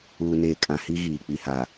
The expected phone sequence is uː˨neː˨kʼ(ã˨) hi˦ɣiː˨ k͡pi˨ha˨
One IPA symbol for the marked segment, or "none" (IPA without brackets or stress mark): ã˨